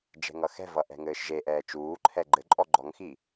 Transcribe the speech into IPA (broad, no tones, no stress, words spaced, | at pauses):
d͡ʒɛ̤ŋʌxɛ̤vʌ ʔɛ̤ŋɘːʃʒeʔɛː t͡ʃuːǃʰɛ ɡ͡ǃɘǃʼɔ ɡ͡ǃɔŋxi